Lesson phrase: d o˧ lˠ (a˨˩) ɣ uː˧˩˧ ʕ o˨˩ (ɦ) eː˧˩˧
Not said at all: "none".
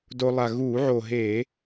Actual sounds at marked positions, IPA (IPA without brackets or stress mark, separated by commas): a˨˩, ɦ